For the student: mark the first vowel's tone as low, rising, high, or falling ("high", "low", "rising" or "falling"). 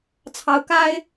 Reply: rising